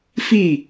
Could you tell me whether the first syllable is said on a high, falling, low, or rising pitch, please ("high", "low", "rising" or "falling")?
falling